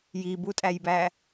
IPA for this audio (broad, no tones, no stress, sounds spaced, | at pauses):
j i b u tʼ æ j b æ